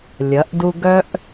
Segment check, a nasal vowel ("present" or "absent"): absent